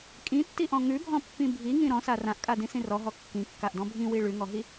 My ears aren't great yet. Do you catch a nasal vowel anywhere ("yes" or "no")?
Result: yes